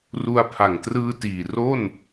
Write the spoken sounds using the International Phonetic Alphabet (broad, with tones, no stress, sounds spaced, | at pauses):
r u˧ a̯ pʰ a˨˩ ŋ t r ɯː˧ t iː˨˩ r o˥˩ n